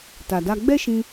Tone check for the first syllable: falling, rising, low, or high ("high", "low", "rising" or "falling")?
low